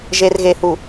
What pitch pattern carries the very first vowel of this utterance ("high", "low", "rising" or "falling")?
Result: low